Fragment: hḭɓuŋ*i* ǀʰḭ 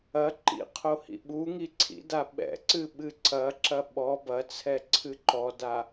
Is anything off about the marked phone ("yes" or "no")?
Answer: no